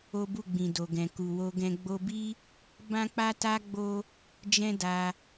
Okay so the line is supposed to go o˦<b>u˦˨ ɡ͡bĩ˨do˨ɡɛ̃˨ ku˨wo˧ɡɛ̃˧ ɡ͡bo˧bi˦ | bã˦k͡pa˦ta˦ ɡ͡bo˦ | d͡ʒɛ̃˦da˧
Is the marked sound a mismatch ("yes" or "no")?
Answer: no